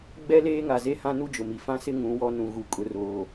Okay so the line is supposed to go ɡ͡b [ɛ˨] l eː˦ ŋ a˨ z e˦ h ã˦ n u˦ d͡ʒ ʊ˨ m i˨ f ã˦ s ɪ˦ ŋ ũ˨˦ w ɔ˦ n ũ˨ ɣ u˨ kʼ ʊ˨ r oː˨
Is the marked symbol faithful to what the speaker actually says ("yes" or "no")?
no